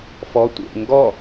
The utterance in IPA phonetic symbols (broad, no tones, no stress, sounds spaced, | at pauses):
f ɔ tʷ ḛ ŋ ɡ ɔ